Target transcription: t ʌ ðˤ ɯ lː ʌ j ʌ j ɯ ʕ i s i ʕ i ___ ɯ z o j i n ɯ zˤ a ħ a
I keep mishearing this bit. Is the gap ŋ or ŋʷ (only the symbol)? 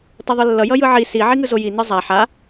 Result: ŋ